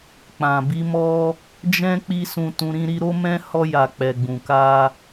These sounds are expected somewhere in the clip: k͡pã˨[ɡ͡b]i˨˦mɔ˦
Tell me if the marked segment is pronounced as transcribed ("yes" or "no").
no